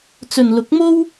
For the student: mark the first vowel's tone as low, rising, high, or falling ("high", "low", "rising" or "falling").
low